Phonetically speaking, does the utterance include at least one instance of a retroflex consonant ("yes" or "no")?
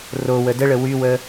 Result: yes